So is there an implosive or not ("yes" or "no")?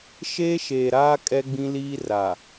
no